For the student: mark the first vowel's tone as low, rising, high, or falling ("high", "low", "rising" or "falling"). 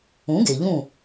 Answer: rising